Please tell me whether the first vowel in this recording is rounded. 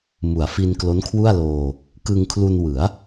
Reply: yes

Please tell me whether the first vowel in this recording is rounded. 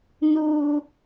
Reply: yes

